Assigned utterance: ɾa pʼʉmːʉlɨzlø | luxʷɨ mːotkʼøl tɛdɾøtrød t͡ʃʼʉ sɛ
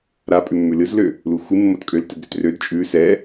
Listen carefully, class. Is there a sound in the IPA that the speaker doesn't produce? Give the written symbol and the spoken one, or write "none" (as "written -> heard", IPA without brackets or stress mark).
none